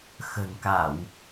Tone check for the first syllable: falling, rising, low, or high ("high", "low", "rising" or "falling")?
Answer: low